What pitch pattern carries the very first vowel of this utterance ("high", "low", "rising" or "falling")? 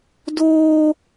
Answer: high